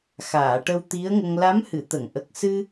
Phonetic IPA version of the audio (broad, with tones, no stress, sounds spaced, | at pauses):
x aː˨˩˨ ʈ ə˧ w t̪ i˧˥ ə̯ ŋ ə˧ ŋ l a˧˥ m h ɨ˨˩˨ t̪ ə˨˩˨ ŋ ʔ ə˨˩ k̚ s ɨ˧